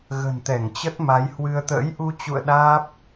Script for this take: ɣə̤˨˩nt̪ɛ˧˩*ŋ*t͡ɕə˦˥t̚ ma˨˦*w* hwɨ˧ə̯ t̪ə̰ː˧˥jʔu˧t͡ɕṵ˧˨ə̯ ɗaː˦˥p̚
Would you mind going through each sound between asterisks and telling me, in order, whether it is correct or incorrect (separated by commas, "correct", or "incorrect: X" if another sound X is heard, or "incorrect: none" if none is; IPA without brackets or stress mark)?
correct, incorrect: j